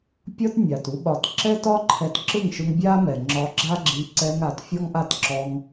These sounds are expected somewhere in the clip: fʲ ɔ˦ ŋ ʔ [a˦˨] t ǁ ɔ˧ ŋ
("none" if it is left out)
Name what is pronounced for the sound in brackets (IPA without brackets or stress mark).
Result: a˦˨